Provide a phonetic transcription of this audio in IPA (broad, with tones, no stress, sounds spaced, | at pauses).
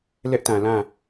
l ɛ˦ ʔ t ã˨ l ã˦˨